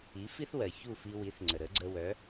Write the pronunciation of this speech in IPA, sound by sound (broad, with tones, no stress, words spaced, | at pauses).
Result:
i˩˥fi˥θwɜ˩ çu˥˩fi˧ wi˩˥θŋ͡ǀə˩ ɾə˩˥ɡ͡ǀə˧wœ˩˥